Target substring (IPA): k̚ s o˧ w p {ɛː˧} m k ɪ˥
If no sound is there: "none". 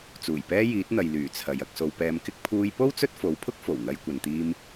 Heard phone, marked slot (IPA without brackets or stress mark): ɛː˧